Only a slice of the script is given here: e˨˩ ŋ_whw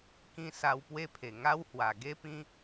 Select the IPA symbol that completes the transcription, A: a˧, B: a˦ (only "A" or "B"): B